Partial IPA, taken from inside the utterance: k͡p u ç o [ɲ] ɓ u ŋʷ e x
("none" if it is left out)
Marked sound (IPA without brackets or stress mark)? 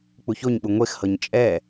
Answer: ɲ